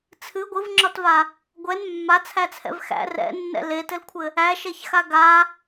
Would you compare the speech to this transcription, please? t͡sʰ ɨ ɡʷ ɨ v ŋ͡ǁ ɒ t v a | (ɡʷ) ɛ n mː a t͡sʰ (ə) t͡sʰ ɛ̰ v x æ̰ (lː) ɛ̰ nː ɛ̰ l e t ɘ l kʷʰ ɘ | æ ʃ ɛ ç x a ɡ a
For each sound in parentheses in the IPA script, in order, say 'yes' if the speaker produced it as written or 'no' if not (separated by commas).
yes, no, no